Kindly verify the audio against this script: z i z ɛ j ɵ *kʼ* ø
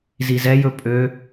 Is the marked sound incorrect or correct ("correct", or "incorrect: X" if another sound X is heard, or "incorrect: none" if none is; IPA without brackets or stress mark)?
incorrect: pʼ